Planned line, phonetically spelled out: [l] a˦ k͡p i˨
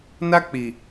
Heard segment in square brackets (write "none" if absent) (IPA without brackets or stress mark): n